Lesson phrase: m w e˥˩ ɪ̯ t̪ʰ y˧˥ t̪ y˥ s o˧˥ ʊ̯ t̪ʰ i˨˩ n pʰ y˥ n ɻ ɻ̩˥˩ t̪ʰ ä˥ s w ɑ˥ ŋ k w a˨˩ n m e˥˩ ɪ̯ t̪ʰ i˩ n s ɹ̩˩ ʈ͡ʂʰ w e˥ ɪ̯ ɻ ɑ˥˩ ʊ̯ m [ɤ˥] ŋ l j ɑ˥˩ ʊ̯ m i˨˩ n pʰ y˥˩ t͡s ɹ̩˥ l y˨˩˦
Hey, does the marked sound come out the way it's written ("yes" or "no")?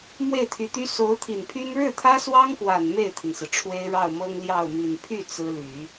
yes